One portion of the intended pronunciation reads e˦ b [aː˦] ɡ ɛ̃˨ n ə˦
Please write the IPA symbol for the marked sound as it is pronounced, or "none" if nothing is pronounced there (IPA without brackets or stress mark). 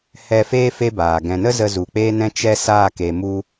aː˨